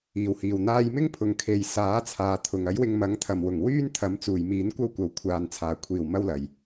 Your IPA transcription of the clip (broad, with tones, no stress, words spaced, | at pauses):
iː˨˩whiː˨˩w n̪aː˧jmɪ˥ŋpʰʊ˨ŋ kʰe˨jsaː˨˥ t͡sʰaː˨t̪ʰʊ˨ŋ ɐ˨˥jwɪ˧ŋ mɐ˨˥ŋt̪ʰɐ˨mwʊ˨˩ŋ wyː˥nt̪ʰɐ˨˥mt͡suː˨˩j miː˨˥nkʷɐ˥wkʷɐ˨wkʷʰaː˨n t͡sʰaː˨˩kʷʰiː˨˩wmɐ˧wlɐ˨˩j